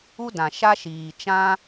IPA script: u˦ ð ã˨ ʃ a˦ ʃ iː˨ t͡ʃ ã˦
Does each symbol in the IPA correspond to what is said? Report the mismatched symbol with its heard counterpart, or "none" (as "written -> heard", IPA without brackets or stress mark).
ð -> d